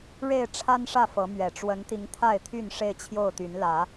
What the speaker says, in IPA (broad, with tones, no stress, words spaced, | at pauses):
ɻe˥˨ɪ̯ʈ͡ʂʰa˦nʂä˥˨fɤ˨˦ mɥɛ˨˩ʈ͡ʂwə˨˦nt̪i˨˦ŋ t̪ʰa˥˨ɪ̯t̪ʰy˥˨n ʂe˥˨ɪ̯t͡ɕʰjo˥˨ʊ̯t̪y˨˦nlä˨˦